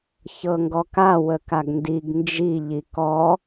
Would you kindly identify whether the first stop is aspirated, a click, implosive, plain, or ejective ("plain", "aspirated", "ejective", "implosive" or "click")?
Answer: plain